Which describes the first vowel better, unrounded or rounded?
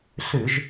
rounded